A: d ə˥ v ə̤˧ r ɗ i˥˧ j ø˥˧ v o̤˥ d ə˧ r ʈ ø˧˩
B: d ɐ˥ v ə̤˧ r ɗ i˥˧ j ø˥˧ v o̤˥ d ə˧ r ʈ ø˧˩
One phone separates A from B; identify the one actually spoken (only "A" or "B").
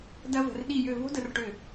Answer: B